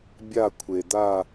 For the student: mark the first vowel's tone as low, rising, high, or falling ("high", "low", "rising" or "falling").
falling